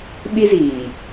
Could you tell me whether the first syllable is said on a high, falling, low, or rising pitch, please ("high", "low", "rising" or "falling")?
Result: high